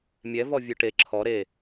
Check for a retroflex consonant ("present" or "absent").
present